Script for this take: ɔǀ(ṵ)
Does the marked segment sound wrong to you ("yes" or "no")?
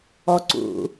no